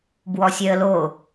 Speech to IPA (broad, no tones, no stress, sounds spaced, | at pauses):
b w ɔ sʲ œ ə̯ l o